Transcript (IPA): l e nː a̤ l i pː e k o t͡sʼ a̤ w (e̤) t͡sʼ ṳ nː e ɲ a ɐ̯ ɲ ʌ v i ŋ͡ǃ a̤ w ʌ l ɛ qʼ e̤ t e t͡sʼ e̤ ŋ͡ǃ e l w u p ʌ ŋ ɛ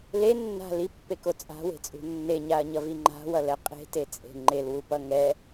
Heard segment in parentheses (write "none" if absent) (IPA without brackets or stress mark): e̤